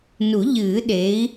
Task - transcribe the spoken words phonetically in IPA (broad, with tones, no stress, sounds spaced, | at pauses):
n u˨˩˦ ʎ ɨː˨˩˦ ɗ e˨˥ i̯